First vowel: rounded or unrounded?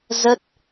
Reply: unrounded